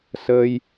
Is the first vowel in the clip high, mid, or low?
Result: mid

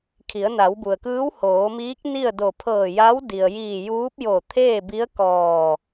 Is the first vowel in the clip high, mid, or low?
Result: high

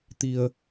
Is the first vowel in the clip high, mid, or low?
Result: high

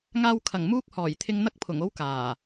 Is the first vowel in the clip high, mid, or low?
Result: low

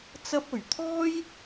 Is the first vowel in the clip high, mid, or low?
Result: low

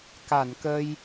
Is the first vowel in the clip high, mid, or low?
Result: low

